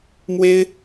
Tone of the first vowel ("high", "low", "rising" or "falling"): high